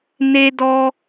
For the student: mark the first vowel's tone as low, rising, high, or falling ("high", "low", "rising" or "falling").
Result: high